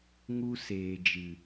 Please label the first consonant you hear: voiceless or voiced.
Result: voiced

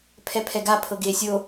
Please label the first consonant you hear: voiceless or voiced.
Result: voiceless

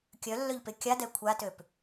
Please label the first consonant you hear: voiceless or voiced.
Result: voiceless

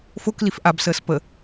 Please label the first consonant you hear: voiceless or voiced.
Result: voiceless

